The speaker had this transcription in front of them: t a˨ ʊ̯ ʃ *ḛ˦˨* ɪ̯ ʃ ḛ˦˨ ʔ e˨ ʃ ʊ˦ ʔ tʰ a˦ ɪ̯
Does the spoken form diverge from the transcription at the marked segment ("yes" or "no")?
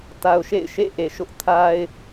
no